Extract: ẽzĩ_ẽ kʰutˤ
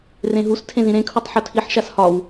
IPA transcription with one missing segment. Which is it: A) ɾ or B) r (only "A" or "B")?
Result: A